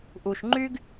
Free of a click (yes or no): no